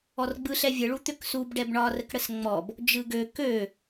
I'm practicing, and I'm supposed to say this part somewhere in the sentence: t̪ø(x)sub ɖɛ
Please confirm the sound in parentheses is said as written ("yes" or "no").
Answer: no